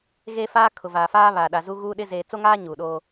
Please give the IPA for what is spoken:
ɣeː˦faː˦ kʰʊ˨vaː˨faː˦ βaː˨ɗa˨zuː˦ ɣuː˦ɗɪ˦ zeː˨t͡so˦ŋaː˦ ɲuː˨ɗoː˦

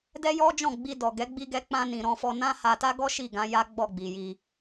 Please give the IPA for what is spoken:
dɛ˦jɔ˦d͡ʒɔ̃˦˨ɡ͡bi˧ dɔ˨ɡɛ˨˦ ɡ͡bi˧ɡɛ˧k͡pã˧nĩ˨ ɾɔ̃˧fɔ˧nã˦ ha˧ta˦ɡɔ˦ ʃi˦˨ɡã˨˦ja˦ ɡ͡bɔ˦˨ɡ͡bi˨ji˧

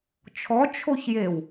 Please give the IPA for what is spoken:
t͡ʃʰɔ t͡ʃʰoçjew

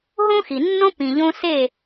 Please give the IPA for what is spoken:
ɦõ˦xi˨nːõ˦ pĩ˨ʎõ˧ se˦˨

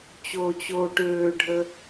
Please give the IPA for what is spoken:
t͡ɕoːt͡ɕoːʈøːɖʱə

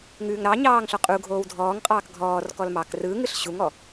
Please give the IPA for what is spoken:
ŋʉːŋɾɑɲɑːŋ ɬɔqʼuɡʱoːw dʱɔːŋqʼɑːk ɡʱɔːrkɔl mɑk rɯːŋɯɬ ɕuŋɔ

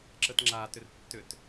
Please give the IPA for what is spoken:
ǁətŋ͡ǁatʏr tːʏt

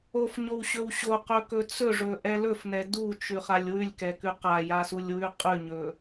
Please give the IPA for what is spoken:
ofɲowɕɵw ɕoqɵkɵ t͡sɵʐɵʔɛ lɵfnɛ dut͡ʃʉχalʲ wʉlʲkɛkʉ qajasulʲwʉ qʼʉɲɵ

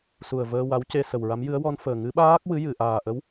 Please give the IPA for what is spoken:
su˨˩ə̯vəː˧ wa˧˥wce˧ sə˨˩wɹa˧˥mjɨ˧˥ə̯ wɔ˧n fəː˨˩ ŋɨ˧˥ɓaː˦˥k̚ wɨ˧˥jɨ˨˩˨ʔaː˨˩ʔə˧˥w

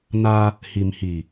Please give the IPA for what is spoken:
na˦ | hi˨mhi˨

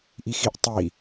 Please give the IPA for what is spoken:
ʔixiʔ tˤi

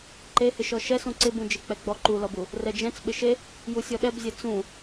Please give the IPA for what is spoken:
ǃehɪʃɔ ʃɛsũ ǀɪ bũd͡ʒek͡pɛɡ͡bɔ ǃulɔbu | rɛd͡ʒɛ̃t͡s ɓɪʃe | jusʲɔɗɛbzʲɛ t͡sũ

